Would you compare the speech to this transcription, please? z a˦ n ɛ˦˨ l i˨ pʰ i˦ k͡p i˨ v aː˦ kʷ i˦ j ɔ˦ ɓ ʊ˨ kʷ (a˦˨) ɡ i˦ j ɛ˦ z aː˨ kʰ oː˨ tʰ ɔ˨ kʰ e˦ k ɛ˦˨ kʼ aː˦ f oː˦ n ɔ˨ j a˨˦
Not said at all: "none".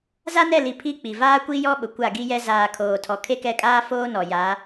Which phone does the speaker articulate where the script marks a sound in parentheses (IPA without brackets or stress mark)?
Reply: a˦˨